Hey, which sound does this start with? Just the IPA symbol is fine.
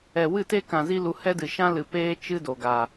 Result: ɛ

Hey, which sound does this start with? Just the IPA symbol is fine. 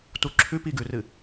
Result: t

